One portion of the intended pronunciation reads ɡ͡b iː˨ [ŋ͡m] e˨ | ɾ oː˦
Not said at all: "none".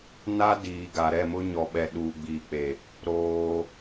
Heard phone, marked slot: k͡p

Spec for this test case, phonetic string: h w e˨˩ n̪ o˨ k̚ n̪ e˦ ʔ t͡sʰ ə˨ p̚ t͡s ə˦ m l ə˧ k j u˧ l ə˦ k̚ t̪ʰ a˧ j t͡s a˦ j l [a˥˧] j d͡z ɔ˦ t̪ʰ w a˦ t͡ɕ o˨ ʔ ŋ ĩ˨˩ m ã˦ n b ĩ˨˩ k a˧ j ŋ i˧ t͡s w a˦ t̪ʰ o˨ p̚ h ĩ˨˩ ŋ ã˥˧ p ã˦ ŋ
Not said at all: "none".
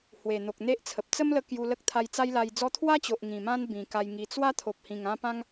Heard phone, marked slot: a˧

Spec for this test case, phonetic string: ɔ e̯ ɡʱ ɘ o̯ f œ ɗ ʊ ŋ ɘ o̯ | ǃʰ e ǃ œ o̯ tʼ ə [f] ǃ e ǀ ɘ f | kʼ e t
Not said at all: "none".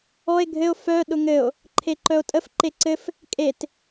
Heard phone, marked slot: f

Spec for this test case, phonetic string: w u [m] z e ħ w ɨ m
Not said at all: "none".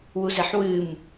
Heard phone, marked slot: none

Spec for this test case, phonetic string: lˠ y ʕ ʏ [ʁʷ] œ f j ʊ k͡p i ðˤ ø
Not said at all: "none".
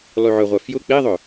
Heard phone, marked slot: ʁʷ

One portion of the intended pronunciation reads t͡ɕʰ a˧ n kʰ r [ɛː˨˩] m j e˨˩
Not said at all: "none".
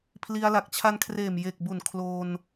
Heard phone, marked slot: eː˨˩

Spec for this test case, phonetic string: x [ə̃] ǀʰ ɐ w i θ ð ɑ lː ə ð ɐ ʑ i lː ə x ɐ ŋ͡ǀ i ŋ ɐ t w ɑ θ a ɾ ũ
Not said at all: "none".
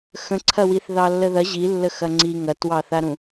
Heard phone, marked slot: ə̃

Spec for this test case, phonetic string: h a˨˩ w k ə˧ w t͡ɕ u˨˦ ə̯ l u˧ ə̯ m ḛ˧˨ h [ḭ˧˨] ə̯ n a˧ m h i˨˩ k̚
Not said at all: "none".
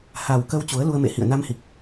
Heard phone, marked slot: ḭ˧˨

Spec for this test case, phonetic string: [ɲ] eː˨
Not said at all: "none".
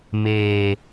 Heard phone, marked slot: m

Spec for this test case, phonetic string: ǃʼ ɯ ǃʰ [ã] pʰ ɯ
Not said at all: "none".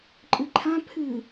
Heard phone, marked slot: ã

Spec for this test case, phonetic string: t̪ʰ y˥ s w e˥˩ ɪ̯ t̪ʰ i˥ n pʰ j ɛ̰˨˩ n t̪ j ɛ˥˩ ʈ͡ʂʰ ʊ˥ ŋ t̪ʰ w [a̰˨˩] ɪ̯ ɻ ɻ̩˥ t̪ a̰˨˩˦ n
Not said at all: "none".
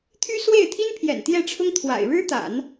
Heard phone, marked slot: a̰˨˩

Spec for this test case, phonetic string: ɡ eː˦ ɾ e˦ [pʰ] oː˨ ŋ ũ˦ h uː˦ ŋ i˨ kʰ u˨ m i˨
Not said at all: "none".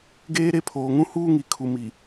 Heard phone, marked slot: pʰ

